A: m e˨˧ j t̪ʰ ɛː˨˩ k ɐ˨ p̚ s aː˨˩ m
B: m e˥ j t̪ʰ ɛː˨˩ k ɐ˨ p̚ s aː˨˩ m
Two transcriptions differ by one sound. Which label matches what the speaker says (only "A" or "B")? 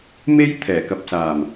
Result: B